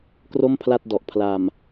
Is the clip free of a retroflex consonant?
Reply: yes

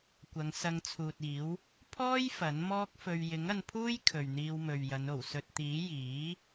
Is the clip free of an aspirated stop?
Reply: no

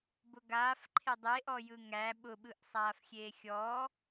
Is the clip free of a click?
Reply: no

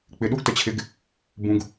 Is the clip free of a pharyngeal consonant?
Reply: yes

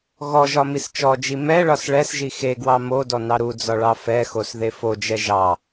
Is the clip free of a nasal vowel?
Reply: yes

